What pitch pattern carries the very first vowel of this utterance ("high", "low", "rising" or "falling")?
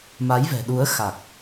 rising